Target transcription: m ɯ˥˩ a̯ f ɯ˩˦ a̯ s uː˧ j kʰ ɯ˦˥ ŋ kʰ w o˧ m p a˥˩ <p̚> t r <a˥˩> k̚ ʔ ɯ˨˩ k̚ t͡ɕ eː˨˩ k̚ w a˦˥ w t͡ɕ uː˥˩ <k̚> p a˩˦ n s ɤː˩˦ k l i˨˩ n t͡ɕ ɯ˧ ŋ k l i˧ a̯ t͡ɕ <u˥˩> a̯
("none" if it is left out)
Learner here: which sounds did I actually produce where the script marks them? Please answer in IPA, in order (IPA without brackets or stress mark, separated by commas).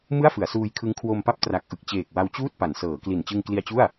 p̚, a˨˩, t̚, u˥˩